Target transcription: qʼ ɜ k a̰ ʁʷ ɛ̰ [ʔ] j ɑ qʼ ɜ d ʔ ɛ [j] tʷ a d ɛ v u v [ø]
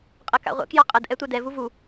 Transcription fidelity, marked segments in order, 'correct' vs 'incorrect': incorrect: k, incorrect: none, incorrect: u

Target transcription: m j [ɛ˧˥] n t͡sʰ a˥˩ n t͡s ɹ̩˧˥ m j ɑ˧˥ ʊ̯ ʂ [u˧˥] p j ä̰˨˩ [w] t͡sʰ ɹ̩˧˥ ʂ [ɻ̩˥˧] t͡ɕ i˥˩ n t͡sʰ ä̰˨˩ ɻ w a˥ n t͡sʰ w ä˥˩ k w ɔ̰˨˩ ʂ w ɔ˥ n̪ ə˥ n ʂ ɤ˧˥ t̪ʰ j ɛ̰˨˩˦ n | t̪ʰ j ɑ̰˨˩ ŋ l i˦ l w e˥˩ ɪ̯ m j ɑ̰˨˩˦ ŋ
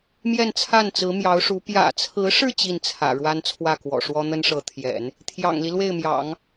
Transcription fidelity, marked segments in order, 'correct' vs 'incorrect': incorrect: ɛ˥˧, correct, incorrect: none, correct

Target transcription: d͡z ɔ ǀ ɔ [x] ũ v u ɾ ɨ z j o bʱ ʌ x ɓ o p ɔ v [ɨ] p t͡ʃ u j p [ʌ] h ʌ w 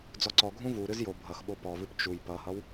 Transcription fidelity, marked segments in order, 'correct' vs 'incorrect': incorrect: ɡʱ, correct, correct

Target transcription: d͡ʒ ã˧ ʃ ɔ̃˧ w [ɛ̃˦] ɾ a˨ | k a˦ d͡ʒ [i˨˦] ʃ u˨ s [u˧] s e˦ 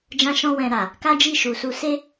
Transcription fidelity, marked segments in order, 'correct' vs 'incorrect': incorrect: ɛ̃˨, incorrect: i˦˨, correct

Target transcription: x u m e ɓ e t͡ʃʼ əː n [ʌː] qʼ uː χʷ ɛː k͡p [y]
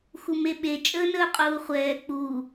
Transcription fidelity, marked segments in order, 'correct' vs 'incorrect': incorrect: əː, incorrect: u

